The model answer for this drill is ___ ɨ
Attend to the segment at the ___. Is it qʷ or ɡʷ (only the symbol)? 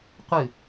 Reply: qʷ